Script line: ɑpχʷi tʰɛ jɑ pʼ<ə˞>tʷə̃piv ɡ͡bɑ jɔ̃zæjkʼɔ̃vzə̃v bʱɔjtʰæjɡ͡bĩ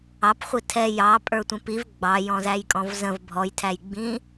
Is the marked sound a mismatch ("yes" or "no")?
no